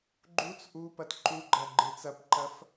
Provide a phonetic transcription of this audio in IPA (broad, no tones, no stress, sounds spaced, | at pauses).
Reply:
ɡ͡ǃ u t͡s ʔ u p ɐ t ǃ u ɡ͡ǃ ɐ ɡ͡ǃ ɯ t͡s ɐ p ǃ ɐ f